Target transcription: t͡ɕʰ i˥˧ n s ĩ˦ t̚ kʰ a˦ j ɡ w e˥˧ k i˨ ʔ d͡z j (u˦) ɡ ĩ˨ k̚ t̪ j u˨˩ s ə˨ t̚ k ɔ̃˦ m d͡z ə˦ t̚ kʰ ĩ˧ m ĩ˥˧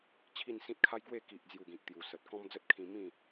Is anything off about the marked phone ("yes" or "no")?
yes